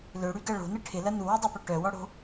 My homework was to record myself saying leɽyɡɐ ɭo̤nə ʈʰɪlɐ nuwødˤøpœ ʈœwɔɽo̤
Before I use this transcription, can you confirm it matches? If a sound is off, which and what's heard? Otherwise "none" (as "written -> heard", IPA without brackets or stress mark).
e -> ø